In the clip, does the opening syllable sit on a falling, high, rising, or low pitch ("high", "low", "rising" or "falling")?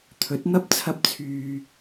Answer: rising